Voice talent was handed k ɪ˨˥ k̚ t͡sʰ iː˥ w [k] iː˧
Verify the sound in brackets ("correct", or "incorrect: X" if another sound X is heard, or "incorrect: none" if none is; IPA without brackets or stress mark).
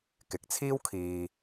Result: incorrect: kʰ